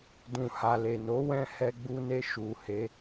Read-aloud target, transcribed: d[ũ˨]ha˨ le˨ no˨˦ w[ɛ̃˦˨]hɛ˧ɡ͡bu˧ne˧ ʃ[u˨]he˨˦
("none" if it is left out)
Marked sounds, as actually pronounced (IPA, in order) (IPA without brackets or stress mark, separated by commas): ũ˨, ɛ̃˦˨, u˨